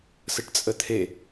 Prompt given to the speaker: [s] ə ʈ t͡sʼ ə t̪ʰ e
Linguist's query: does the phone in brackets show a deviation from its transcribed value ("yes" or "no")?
no